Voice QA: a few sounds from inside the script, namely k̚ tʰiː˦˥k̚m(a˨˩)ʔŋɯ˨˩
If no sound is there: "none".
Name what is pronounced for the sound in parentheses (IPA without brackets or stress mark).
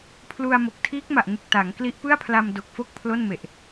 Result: a˨˩